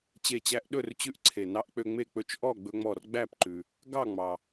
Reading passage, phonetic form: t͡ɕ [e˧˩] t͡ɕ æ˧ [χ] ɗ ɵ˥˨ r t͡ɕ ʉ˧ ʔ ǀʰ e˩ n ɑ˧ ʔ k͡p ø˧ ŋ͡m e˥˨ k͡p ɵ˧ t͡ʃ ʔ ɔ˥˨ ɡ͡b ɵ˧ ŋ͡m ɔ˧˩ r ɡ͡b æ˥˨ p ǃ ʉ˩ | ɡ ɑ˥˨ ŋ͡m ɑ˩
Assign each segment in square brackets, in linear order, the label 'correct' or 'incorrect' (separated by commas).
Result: correct, incorrect